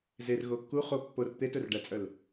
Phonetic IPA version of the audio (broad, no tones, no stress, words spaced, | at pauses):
zer ɣokːu χo pːor t̪etɵrɖæt͡sʼœl